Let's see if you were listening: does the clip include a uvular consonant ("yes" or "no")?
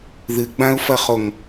yes